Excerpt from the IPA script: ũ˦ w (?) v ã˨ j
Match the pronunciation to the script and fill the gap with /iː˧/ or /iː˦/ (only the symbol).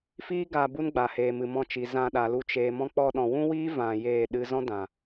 iː˦